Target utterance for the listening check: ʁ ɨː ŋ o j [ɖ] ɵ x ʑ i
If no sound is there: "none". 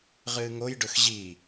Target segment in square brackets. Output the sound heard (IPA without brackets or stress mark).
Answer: ɖ